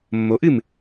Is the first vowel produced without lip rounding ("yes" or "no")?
no